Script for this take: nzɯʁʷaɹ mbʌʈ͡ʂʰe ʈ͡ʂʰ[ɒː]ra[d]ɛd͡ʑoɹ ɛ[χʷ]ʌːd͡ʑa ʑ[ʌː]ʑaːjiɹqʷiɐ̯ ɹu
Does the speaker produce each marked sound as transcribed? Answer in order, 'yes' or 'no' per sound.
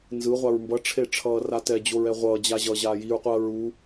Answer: no, no, no, yes

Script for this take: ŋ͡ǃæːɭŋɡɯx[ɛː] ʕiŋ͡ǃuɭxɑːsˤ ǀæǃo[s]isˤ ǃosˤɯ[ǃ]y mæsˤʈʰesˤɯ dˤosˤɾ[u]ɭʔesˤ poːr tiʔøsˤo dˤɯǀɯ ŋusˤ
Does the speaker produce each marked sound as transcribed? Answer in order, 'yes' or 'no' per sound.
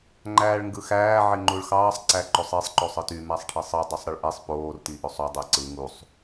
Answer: no, no, no, no

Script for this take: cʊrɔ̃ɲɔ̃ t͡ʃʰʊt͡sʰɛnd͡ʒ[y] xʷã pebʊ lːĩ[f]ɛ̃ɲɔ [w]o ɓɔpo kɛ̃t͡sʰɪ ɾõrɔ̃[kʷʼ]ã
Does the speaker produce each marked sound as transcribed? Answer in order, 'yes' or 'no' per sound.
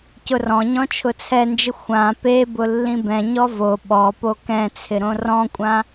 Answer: no, no, no, yes

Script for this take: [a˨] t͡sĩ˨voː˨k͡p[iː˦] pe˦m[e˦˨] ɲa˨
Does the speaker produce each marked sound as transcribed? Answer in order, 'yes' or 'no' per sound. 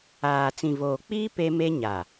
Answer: no, yes, no

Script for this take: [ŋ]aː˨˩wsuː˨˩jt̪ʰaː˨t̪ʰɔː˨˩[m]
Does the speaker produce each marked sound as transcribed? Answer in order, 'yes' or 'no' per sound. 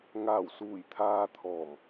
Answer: yes, yes

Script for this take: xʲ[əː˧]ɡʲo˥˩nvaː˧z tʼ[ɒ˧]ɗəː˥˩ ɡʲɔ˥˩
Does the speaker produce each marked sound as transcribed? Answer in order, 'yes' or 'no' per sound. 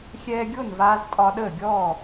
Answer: no, yes

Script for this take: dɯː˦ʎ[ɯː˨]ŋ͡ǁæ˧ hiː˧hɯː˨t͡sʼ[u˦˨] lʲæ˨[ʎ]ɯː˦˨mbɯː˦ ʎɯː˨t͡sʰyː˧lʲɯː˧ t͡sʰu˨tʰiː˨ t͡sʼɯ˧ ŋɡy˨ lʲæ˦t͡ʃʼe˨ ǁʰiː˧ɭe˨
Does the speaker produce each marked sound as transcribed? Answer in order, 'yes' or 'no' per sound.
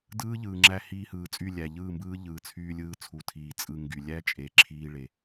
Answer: yes, no, yes

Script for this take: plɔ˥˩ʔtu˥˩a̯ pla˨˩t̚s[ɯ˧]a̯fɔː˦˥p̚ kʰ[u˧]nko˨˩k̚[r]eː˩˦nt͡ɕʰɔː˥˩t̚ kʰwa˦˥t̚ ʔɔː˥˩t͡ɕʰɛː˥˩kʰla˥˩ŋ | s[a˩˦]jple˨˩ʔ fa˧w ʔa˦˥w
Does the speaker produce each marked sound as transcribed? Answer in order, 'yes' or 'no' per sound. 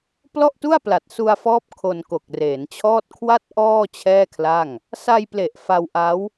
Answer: no, no, yes, no

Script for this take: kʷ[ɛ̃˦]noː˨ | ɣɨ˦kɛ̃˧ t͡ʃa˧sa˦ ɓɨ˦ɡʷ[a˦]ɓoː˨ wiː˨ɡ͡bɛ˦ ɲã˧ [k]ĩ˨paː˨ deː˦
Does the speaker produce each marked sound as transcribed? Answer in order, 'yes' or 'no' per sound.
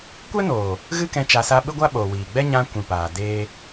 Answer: no, yes, no

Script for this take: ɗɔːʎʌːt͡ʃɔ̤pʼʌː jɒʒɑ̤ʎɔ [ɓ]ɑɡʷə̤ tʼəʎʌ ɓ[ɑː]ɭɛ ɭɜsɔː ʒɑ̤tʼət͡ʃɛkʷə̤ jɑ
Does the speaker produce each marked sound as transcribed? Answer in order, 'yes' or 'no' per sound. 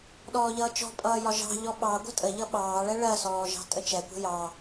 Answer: yes, yes

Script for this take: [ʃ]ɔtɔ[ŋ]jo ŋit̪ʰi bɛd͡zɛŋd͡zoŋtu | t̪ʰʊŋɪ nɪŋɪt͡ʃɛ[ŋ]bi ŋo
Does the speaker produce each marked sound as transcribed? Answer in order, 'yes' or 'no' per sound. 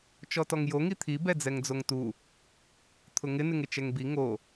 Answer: no, yes, yes

